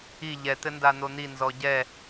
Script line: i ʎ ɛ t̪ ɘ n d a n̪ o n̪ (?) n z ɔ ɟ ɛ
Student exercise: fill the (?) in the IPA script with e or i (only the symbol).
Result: i